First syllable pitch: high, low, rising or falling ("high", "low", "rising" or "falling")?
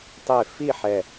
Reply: falling